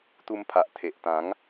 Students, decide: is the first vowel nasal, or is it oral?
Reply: oral